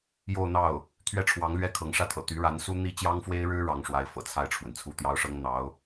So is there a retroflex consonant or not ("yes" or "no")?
yes